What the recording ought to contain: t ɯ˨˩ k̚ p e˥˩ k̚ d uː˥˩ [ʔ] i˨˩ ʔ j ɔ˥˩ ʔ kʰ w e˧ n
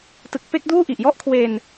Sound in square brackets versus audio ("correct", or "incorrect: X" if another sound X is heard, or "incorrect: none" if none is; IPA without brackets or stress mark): correct